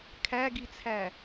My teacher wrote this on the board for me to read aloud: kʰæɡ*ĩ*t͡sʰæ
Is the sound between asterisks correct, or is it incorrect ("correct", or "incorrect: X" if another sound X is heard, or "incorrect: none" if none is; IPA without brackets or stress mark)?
incorrect: i